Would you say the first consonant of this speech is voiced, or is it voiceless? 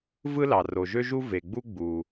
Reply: voiced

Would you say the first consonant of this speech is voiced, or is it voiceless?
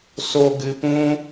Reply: voiceless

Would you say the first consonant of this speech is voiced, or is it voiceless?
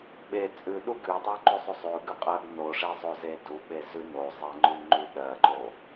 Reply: voiced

